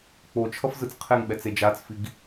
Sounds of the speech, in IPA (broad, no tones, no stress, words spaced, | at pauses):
k͡pot͡ʃʰʌf zɯt͡sqʰeŋɓɛ t͡sed͡ʒat͡sfiɡ